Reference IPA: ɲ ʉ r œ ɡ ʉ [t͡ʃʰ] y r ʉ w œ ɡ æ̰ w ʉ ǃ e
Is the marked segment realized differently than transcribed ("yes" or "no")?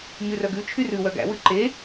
no